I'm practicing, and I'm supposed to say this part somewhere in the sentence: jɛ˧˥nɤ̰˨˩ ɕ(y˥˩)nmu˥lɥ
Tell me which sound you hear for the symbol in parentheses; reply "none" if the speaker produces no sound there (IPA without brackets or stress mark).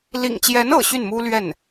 y˥˩